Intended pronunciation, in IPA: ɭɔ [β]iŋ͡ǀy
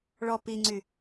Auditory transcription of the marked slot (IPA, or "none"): p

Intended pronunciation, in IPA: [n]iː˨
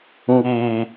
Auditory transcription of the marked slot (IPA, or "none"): ŋ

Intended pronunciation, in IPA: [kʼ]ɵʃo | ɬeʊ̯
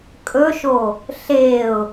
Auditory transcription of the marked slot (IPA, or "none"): kʼ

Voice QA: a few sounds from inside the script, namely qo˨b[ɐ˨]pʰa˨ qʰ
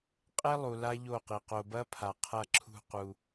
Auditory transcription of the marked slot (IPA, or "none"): ɐ˦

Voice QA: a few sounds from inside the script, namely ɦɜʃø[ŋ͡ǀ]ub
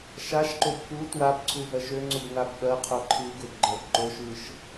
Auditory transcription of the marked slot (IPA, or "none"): ŋ͡ǀ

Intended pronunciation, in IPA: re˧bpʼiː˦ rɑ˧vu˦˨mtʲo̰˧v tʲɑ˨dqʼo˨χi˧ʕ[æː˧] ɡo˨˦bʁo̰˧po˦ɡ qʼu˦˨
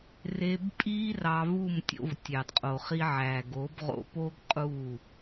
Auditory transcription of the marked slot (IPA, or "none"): æː˨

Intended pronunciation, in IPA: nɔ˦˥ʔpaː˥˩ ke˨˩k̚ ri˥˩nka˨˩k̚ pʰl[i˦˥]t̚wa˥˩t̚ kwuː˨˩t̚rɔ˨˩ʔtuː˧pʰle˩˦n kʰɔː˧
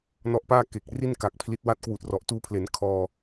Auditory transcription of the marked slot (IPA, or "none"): i˦˥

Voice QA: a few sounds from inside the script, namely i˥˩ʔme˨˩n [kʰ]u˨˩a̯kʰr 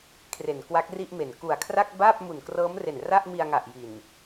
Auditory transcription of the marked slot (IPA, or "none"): k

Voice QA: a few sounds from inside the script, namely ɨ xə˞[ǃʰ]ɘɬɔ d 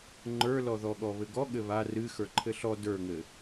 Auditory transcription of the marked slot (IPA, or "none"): ǃʰ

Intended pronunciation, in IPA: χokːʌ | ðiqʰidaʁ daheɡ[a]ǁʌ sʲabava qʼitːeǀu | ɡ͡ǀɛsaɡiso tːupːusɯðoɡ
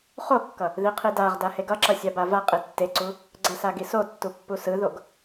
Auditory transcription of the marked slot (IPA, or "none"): ʌ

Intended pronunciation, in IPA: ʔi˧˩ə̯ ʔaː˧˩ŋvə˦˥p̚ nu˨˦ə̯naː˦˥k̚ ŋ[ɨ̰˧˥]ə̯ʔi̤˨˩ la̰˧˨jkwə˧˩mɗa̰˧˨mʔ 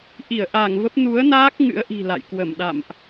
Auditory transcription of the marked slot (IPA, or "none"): ɨ̰˧˥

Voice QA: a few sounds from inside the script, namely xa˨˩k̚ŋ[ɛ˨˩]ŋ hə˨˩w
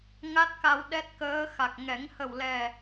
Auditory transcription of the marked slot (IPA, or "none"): ɛ˨˩˦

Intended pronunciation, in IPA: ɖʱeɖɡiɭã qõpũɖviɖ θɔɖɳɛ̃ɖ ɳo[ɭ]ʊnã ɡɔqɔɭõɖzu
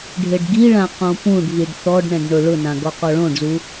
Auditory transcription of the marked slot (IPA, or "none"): ɭ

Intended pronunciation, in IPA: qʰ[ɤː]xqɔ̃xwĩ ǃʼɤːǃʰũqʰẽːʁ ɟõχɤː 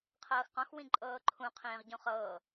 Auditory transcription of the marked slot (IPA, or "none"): ɤː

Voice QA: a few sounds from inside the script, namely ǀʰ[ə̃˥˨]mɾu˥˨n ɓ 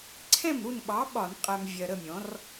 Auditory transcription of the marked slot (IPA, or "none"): ɛ̃˥˨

